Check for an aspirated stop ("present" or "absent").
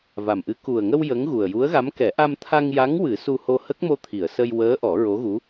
present